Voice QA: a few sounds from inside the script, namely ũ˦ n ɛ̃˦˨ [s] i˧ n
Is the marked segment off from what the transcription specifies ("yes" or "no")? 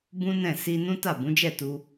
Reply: no